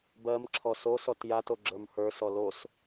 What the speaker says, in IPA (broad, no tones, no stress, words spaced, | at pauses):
bɜmǁʰɔ sosɔt jatoɡ͡ǁə˞m hə˞sɔ los